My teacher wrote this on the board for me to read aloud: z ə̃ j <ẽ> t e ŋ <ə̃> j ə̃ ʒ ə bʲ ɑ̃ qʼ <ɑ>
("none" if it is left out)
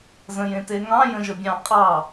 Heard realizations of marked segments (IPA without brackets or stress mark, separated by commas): ẽ, ɑ̃, ɑ